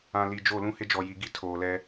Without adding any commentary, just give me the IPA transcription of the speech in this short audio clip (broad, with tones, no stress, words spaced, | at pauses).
ã˨li˨d͡ʒo˦˨ lũ˦hɪ˦d͡ʒɔ˨ji˨ ɡi˦ tʰoː˨lɛ˦